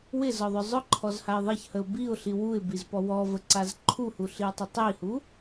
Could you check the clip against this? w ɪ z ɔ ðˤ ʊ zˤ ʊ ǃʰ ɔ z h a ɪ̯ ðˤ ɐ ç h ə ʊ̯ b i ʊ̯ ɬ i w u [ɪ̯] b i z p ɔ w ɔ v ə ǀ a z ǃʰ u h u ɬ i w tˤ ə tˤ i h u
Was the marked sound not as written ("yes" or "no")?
no